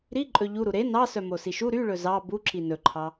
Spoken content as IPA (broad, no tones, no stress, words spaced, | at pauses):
ɾiǃʼɵ ʎuɾu ɾe nɑ sœmosiʃu ɾyɭɵ zɑ buǁi nɵǃʰɑ